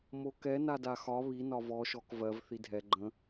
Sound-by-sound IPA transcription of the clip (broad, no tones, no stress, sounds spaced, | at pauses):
m o k ɛ n a d a x ɒ β i n ɒ v ɔ ʃ ɔ k v ɜ v θ i dʱ ɛ ɡ͡ǃ ə̃